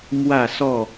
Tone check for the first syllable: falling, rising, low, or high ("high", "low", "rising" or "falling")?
falling